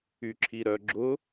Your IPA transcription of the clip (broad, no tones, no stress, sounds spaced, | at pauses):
y ǁʰ i ɾ œ ɡ͡ǁ ʊ